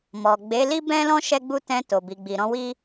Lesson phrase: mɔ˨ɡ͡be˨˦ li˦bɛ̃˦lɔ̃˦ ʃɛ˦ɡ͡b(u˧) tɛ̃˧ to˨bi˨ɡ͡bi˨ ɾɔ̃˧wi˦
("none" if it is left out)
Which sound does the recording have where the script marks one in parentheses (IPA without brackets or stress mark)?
u˦